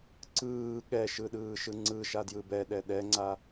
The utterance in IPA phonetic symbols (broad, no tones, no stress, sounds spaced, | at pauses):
ǀ ɯː ɠ ɛ ʃ ɯ ɗ ɯː ʃ ɯ ŋ͡ǀ ɯ ʃ a d j ɯ b ɛ ɗ ɛ ɗ ɛ ŋ͡ǀ a